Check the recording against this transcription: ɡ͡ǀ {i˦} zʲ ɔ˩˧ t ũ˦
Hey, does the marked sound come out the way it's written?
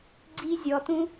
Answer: yes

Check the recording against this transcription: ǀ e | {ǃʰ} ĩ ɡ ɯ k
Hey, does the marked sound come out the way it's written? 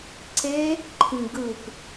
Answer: yes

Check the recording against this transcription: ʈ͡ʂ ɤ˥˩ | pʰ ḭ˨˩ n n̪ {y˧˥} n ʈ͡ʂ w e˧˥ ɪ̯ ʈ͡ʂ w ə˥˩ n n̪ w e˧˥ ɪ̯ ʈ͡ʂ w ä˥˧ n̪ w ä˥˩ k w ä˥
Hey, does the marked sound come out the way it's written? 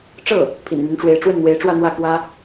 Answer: yes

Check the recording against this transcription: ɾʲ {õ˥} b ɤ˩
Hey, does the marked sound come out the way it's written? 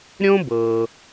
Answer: yes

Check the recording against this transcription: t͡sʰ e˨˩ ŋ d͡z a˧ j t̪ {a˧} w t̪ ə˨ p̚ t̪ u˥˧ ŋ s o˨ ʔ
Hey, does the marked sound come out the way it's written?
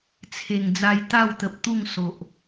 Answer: no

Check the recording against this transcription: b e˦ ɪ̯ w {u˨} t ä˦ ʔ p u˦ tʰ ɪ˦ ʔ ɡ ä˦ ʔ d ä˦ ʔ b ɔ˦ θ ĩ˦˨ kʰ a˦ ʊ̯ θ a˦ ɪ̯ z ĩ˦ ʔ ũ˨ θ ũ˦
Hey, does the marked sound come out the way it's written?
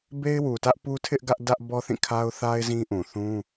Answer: yes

